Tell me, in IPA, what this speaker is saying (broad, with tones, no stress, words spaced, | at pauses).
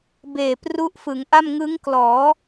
beː˨˩pru˦˥ʔfɯ˩˦ŋʔa˥˩m ŋɯ˦˥ŋklɔː˩˦